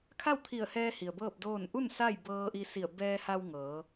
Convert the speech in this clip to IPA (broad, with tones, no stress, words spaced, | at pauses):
kʰa˥˨wt̪ʰi˧˩ə̯hɛː˧ hi˩ə̯bɤː˥˨p̚doː˥˨n ʔu˥˨n sa˥˨j bɤː˧ʔi˧ si˧˩ə̯ bɛː˧ha˧w ŋɤː˩˧